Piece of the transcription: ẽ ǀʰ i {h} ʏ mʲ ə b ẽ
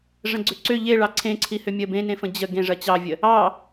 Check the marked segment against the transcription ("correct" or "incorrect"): correct